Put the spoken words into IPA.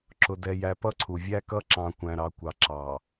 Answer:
ǁ ʊ˨ d ɛ˨ j æ˨ p ʌ˦ ǀʰ u˨ vʲ æ˦ k ʌ˦ ǁ ɑ̃˨ kʷ æ̃˨ ɾ ɑ˨ kʷ ɑ˨ ǁ ɑ˨

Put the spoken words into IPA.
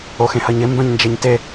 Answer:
o x ẽ h ɐ ɲ ɪ m b œ̃ ɲ n d͡ʒ e ɲ t e

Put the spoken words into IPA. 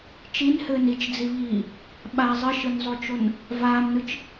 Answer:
t͡ʃ i n h ɘː n i t͡ʃ d͡z i β iː | ɓ a zˤ ɘ ʃ ɯ n zˤ o t͡ʃ o n | v aː m n ɯ t͡ʃ

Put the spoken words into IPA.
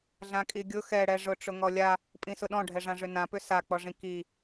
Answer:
ɮ ã kʼ i ɡʲ ʊ x ɛ ɽ ɛ ʐ ʊ ʈ͡ʂ ʊ ŋ ɔ lʲ a | pʼ ĩ s ʊ ɗ ɔ̃ ɖʱ ɛ ʐ ã ʐ ʏ n ã p ʏ s a k͡p ɔ ʐ ĩ k i

